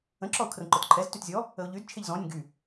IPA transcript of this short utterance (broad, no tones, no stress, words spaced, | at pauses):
ə̃ǁɔʊ̯ kʰrə̃ǃœtǃʰɛz tytzʲɔ | əʊ̯ʎyd t͡ʃʰeʎzɔ̃nʲə̃ ɡy